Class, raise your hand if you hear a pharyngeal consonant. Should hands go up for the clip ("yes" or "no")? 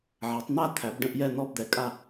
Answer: yes